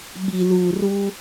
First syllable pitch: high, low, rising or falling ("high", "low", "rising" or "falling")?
low